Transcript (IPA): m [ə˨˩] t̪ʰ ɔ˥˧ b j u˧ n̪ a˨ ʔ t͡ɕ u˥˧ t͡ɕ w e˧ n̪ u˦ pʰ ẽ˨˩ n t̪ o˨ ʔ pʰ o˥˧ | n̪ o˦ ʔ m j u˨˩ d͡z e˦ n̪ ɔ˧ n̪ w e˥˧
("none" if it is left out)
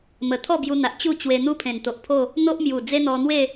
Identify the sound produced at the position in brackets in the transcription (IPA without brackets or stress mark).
ə˨˩